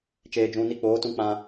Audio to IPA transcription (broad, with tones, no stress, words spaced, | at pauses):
t͡ʃeː˨d͡ʒũ˨ ni˧k͡poː˨˦tũ˧ k͡pã˧